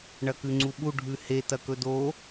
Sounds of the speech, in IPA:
ɳ ɐ k ʉ ŋ͡ǀ u ɓ u ɖʱ ʉ h e t ɐ k ɵ d o

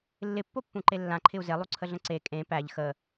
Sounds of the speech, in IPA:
lː ɪ pː o pː ũ ǃ e lː ã ǃʰ ɪ u̯ z e lˠ u ǀʰ ə ɮ ə̃ ǀ e kʼ ẽ p æ ʎ x ə

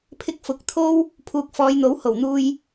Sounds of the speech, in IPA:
pʰ ɪ˧ k̚ f ʊ˨˥ k̚ t̪ʰ o˥ w | pʰ uː˨ k̚ f ɔː˨˧ j n̪ o˨˥ w h o˨˩ w n̪ uː˧ j

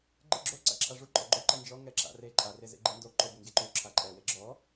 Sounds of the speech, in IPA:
ɡ͡ǃ ɯ ɡ͡ǁ o ǀ a̰ ǁʰ a ʐ u ǃʼ ɔ ɡ͡ǃ o ǃ ɛ n d͡ʒ ɔ ŋ ɛ ǁ a̰ r e ǃʼ a r e z ḛ ɡ͡ǃ ɯ n d o ǃ o b e ŋ ɡ e ǃ u ǁʰ a ǃʼ ɛ w e ɡ͡ǁ ɔ

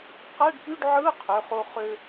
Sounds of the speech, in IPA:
q æ˧˥˧ ɖ p y˧˥˧ ɖ ʕ ɯ˧˥˧ qʰ ø˩˧˩ χ o˧ χ ø˧

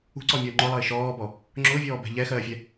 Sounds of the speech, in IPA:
ṳ ǀ ɔ mʲ ɔː ŋ͡ǃ ʊ lˠ ʌ ɪ̯ ʃ ɔː b ɔ | ŋ͡ǁ ʊː vʲ ɔː b ɛ̤ ʎ ɛ x ɜː fʲ ɛ

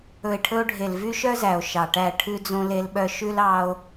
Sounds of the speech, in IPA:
ɵ˨ e̯ ʈʰ ɵ˧ o̯ ɖʱ e˨ l v y˦ ʃ œ˦ z æ˨ o̯ ʃ ɑ˨ ʈ æ˦˨ ʈʰ ʉ˧ d͡z õ˧ l e˧ l ɓ œ˧ ʃ ʉ˦ l ɑ˦ o̯

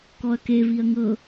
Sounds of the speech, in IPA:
k ɔ ɐ̯ k e v i ɐ̯ ŋ ɤ

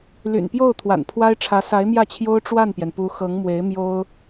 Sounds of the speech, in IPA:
l y̰˨˩ n p j o˥˩ ʊ̯ t̪ʰ w a̰˨˩ n pʰ w a˥ ɪ̯ ʈ͡ʂʰ ä˧˥ s a˧˥ ɪ̯ m j ä˥˩ t͡ɕʰ j o˥ ʊ̯ ʈ͡ʂ w a˥˩ n p j ɛ˩ n p u˧˥ x ɤ˧˥ ŋ m w e˧˥ ɪ̯ m j o˥ ʊ̯

